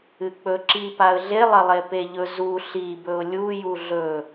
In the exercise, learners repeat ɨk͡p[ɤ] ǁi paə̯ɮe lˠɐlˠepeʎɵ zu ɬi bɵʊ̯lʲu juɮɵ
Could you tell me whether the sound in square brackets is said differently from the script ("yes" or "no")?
yes